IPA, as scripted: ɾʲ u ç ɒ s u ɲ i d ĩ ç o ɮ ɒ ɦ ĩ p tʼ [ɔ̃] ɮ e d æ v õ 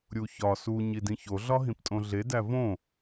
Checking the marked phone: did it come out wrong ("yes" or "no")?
yes